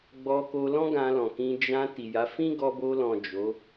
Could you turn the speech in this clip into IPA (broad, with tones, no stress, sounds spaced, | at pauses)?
ɡ͡b ɔ˧ k o˧ l ɔ̃˦ ɡ ã˧ l ɔ̃˨ k ĩ˧ d͡ʒ ã˧ t i˨ j a˨˦ f ĩ˦ ɡ ɔ˧ b o˧ l ɔ̃˨ d͡ʒ o˨˦